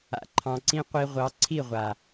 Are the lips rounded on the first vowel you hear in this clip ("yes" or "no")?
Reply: no